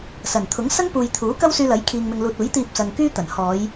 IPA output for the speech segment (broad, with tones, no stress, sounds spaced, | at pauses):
s ɐ˨˩ n t̪ʰ ʊ˨˥ ŋ s ɐ˥ ŋ p uː˨ j t̪ʰ uː˨˥ k ɐ˥ w s yː˧ l ɐ˨˥ j kʰ iː˨ ŋ m ɪ˨ ŋ l uː˨ t̚ uː˨˥ j t̪ iː˧ p̚ s ɐ˨ ŋ k yː˥ t̪ ɐ˨˩ n h ɔː˨˧ j